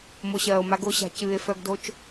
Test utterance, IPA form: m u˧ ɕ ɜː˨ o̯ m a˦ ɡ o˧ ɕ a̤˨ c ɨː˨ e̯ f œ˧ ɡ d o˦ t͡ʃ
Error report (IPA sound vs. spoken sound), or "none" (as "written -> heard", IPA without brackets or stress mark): u˧ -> o˧